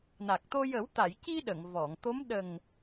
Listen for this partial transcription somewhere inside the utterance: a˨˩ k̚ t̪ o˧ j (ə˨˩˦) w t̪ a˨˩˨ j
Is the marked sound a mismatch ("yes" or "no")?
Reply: no